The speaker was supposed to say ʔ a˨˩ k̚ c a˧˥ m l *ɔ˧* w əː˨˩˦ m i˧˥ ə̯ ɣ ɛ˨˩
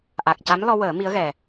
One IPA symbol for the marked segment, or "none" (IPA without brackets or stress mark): ɔ˧